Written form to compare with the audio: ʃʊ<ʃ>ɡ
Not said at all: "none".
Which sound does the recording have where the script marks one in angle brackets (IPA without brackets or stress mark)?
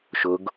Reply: none